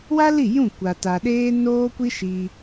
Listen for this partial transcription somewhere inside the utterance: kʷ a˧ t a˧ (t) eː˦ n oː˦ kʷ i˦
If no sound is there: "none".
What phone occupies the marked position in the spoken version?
ɗ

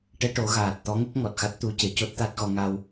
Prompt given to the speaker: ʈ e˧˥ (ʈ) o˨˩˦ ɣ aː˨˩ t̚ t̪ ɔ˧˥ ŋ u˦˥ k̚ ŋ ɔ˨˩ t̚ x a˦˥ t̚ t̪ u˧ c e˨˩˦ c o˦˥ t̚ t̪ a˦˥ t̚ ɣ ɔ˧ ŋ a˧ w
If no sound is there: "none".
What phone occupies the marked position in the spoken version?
ʈ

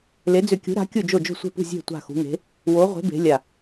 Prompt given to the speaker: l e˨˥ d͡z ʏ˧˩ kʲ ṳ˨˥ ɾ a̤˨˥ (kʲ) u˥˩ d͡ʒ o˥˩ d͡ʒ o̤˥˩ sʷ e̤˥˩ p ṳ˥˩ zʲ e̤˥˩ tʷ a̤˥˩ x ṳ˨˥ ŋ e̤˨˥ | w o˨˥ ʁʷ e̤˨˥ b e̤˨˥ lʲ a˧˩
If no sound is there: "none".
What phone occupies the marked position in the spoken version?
kʲ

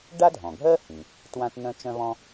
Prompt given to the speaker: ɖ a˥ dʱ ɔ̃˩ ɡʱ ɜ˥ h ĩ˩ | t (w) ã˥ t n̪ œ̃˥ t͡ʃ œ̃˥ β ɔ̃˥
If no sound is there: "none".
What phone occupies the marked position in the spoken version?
w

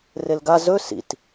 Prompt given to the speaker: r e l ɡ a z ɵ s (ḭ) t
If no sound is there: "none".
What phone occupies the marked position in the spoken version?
ḭ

